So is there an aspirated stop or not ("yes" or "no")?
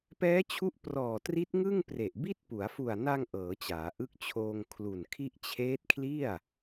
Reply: yes